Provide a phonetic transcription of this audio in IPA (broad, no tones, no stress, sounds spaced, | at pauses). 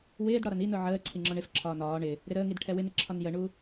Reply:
w ɪː d ɽ ɒ ɾ ʌ n i n ʊ ʕ əː ǀʰ i ŋ͡ǁ ɔ ɳ ɪ f ǁʰ ɒː n ɒː ɳ ɪ | ɾ ɪ ɾ əː ŋ i d ʈʰ ɛ w ɪ n ɪ ǁʰ ɒ n j ə ɳ u